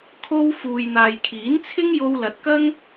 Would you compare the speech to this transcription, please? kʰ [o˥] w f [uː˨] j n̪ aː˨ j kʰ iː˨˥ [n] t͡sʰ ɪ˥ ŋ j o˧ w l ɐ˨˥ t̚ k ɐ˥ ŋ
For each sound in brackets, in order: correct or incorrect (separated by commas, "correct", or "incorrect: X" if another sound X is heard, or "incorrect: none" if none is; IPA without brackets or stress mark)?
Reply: correct, correct, correct